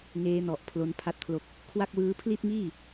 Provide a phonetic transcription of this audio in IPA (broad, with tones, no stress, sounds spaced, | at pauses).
ŋ eː˦˥ n ɔ˨˩ ʔ pʰ l o˦˥ n pʰ a˥˩ t̚ pʰ l o˦˥ k̚ | kʰ w a˥˩ k̚ w ɯː˦˥ pʰ l i˥˩ t̚ ŋ iː˥˩